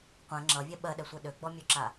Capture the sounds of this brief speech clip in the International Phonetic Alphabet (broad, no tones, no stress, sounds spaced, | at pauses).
qʷ ɛ̃ ŋ͡ǁ ʌ vʲ ɛ ɓ ɜ ɗ ɛ sʷ ɛ ɗ ø ɡ͡b ɔ mʲ ø ǁ a